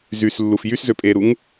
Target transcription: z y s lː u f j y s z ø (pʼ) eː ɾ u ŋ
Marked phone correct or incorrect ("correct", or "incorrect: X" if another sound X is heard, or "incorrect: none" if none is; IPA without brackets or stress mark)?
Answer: correct